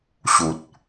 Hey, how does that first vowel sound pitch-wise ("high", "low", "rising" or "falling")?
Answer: low